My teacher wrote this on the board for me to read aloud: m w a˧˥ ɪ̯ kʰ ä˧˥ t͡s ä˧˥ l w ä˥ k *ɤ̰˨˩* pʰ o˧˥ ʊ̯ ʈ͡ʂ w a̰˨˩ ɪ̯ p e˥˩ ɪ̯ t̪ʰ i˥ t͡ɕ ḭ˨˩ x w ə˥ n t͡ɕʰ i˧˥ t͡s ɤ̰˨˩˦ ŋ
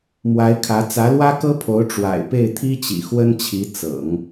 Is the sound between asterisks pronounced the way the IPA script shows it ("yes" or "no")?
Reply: no